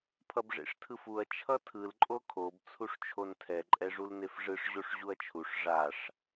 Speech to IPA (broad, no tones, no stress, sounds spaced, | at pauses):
pʰ ʌ b ʐ ḛ ʂ tʰ ɯ f u ɐ̯ t͡ʃʰ ʌ tʰ ɯ l ǃʼ o kʰ o b t͡sʰ u ʂ t͡ʃʰ o n tʰ ɛ ǃʼ ɛ ʐ u l n e f ʐ ɯ ʂ ʑ o ʂ ʑ u ɐ̯ t͡ʃʰ u ʂ ʐ a ʂ